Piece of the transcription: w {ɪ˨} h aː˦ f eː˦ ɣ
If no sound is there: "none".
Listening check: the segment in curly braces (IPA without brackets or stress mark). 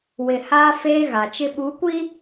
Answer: ɪ˨